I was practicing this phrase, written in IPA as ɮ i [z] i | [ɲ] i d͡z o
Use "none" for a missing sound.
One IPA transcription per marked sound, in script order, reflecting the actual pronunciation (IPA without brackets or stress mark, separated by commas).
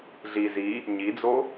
z, ɲ